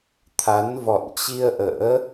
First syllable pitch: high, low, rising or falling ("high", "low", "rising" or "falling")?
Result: rising